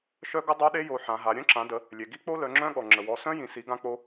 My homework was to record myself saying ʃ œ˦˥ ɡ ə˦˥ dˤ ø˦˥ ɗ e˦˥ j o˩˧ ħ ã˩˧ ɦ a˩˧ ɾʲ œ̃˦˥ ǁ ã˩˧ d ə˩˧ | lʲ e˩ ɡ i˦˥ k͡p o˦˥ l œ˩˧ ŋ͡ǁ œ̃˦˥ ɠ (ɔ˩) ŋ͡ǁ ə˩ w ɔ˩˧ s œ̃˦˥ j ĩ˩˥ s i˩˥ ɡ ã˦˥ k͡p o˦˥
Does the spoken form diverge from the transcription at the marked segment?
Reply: no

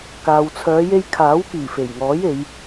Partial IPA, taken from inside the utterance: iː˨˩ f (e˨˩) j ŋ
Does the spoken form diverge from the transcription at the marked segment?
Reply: no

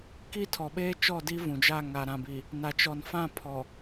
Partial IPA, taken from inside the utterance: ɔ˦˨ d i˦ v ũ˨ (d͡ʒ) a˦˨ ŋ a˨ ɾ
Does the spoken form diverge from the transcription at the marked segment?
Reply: no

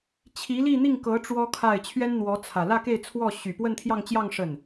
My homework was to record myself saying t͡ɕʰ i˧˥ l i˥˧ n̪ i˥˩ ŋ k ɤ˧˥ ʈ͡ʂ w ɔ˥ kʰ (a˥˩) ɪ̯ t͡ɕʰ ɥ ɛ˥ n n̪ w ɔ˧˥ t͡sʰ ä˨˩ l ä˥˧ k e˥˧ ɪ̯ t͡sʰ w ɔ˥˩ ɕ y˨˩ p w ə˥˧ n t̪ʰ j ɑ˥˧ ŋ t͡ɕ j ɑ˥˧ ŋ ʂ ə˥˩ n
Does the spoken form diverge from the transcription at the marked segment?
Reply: no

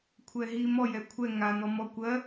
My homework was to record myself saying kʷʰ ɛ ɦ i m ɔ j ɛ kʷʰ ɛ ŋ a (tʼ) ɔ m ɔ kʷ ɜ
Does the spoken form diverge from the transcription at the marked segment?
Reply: yes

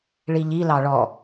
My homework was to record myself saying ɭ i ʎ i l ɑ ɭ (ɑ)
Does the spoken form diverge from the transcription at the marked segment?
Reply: yes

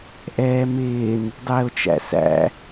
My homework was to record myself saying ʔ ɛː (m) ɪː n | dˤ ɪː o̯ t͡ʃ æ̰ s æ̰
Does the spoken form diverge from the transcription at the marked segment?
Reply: no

